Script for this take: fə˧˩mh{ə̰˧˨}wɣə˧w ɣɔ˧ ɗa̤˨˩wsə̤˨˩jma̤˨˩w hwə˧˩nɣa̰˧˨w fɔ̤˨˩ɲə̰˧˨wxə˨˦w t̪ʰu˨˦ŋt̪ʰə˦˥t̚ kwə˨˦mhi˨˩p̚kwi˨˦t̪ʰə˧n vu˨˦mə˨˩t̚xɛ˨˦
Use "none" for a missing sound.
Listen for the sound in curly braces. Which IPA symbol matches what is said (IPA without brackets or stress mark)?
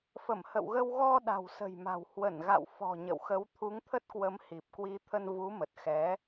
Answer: ə̰˧˨